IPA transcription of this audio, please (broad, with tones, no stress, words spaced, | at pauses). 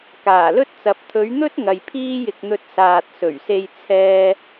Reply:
kaː˨˩lɵ˥t̚t͡sɐ˨˥p̚ t̪ʰɵ˨˧ɥn̪ɵ˥t̚ ŋɐ˨jpʰiː˥jɪ˧k̚n̪ɵ˧t̚ saː˨t̚sɵ˨˩ɥse˧j t͡sʰɛː˥